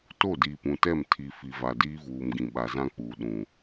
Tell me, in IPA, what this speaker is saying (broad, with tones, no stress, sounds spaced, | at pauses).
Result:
t o˦˨ d iː˨ p ũ˨ t ɛ˦˨ m tʰ i˨ f i˨ v a˨ d iː˦ v uː˨ m ɡ ĩ˨ ɓ a˨ z ã˦ k͡p uː˨ ɗ ũ˨